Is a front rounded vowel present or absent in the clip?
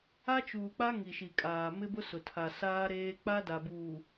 absent